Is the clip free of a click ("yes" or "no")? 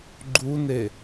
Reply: no